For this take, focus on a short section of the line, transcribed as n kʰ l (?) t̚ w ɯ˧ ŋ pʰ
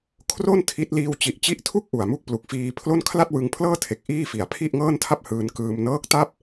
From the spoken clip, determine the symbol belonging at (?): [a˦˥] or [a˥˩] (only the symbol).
a˥˩